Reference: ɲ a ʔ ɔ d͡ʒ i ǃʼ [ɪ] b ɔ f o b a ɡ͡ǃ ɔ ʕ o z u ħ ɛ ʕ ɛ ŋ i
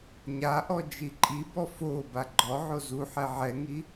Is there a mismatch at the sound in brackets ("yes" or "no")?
yes